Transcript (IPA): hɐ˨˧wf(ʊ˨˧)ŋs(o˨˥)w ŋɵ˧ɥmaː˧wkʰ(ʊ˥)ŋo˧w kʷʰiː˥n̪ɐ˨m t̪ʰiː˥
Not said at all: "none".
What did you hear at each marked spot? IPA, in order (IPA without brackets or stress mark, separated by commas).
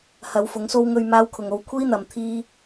ʊ˨˧, o˥, ʊ˨